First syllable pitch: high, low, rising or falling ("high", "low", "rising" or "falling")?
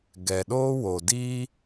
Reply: low